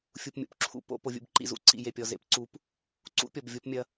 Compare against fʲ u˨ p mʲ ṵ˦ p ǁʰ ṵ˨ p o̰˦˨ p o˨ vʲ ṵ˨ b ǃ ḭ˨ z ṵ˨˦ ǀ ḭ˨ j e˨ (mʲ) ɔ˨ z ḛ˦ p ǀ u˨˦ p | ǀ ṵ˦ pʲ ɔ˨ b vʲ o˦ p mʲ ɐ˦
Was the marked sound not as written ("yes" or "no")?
yes